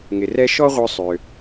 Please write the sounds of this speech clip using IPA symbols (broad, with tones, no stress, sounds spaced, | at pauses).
ŋ ɪ˩ r ɛ˥ ʃ ɔ˥ ʁʷ œ˧ sˤ ø˩